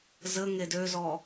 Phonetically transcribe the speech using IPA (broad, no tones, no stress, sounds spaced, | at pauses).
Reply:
z ə ŋ e d ø z ɔ